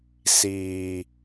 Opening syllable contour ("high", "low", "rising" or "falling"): low